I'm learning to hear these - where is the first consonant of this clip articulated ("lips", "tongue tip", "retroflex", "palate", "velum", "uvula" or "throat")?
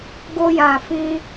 velum